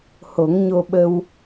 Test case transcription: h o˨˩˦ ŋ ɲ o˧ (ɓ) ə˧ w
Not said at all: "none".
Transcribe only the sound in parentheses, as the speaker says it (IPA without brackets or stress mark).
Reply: ɓ